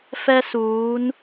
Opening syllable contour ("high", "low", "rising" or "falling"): high